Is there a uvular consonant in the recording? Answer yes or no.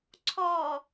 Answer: no